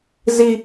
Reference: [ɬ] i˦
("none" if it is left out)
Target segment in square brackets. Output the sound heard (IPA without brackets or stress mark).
z